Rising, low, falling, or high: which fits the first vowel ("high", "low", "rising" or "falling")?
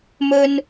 high